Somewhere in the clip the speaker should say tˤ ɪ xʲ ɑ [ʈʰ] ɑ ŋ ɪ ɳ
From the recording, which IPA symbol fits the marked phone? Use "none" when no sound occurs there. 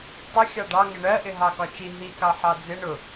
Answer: ɖ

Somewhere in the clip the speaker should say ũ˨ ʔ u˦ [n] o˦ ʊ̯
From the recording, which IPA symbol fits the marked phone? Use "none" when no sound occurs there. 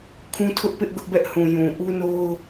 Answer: n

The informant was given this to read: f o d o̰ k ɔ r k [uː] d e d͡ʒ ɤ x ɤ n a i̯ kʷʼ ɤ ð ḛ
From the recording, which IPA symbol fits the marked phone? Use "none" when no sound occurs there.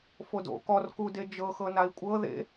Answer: u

